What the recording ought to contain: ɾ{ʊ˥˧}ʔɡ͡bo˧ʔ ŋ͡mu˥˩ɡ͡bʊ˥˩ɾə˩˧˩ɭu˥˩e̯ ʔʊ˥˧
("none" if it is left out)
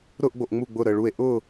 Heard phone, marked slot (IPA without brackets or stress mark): ʊ˥˧